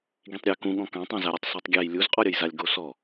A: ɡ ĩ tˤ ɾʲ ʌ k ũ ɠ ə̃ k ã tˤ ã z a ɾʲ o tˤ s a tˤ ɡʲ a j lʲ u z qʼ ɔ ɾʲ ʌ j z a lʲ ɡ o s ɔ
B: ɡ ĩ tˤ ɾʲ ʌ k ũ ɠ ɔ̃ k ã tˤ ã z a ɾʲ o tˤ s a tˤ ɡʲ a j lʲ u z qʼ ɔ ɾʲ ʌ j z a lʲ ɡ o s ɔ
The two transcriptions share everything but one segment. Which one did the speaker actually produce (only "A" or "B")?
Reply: B